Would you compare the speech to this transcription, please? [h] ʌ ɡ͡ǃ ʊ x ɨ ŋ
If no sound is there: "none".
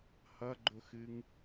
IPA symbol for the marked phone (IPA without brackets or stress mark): h